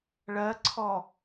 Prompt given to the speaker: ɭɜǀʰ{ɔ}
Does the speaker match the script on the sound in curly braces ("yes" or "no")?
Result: yes